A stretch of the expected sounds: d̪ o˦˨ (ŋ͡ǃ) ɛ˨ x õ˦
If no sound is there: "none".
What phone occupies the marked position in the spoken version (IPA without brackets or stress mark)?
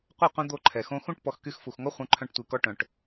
ǃʰ